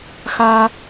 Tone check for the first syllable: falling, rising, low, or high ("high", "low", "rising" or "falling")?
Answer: high